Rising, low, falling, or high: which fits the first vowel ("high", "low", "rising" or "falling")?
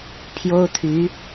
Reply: high